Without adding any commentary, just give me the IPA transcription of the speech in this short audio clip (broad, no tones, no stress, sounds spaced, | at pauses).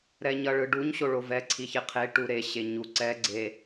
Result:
ɾ ɛ ɲ ʌ ɭ ɯ ɖ u ɲ ɕ o ɭ o v ɛ ǀʰ i ç e qʰ e ʈ u ɾ e ɕ e ɲ u ǀ ɛ ɡ͡ǀ e